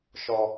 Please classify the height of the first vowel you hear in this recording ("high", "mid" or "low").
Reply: mid